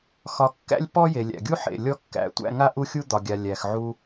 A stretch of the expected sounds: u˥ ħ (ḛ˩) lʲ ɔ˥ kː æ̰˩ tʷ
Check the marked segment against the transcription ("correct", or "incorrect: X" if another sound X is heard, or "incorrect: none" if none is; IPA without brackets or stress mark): correct